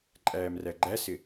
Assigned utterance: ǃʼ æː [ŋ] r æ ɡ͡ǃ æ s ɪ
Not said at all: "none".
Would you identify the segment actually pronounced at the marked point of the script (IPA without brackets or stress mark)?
m